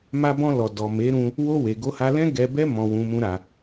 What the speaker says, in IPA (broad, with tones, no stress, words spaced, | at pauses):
ma˧bɔ̃˧lɔ˨ dɔ˨me˨˦ɾũ˧ | wo˧we˨ ɡo˧ha˧lɛ̃˦ ɡɛ˧bɛ˦ mɔ̃˧wũ˧mũ˦ɾa˧